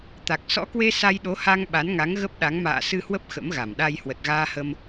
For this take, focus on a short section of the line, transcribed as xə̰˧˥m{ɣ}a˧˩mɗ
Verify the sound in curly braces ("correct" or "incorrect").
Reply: correct